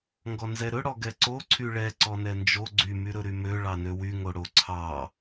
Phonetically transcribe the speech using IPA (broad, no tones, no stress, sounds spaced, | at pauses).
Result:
ŋ ɡ ɔ n z ɛ ɾ ɵ ɽ ɔ ɡ ɛ ǀ o ǀʰ y ɭ ɛ ǀ ɔ n ɛ n d͡ʒ o ɡ͡ǀ y m y ɾ ɵ ɾ y m ø ɭ ɑ n ø w y ŋ o ɽ o ǀʰ ɑ